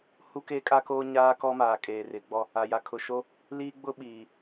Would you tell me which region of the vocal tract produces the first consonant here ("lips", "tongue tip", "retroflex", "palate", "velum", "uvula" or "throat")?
throat